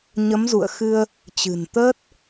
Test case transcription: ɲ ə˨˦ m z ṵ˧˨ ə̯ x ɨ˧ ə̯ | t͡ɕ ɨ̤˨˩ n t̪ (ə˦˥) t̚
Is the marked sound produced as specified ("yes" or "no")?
no